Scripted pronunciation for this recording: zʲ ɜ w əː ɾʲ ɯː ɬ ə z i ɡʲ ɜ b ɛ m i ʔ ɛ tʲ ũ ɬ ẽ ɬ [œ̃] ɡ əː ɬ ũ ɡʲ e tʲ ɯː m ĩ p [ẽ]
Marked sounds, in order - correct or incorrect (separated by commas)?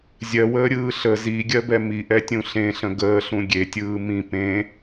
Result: incorrect, correct